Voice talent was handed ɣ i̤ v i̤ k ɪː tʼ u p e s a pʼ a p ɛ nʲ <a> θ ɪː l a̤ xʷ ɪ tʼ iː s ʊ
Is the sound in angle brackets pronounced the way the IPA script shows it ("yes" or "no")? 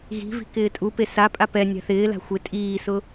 no